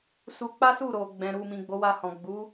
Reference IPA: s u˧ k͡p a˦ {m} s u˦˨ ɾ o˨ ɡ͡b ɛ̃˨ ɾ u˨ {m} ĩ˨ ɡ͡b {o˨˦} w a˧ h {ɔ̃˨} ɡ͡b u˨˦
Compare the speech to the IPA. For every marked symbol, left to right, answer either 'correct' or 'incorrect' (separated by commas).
incorrect, correct, correct, correct